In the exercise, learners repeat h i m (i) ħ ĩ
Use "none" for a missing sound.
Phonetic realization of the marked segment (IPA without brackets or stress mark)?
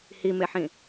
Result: e